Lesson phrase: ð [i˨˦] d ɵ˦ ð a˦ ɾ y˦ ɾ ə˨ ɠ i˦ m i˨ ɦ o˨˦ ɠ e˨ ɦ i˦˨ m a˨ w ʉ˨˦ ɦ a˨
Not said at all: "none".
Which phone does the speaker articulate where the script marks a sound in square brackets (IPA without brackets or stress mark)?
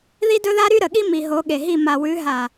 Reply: i˦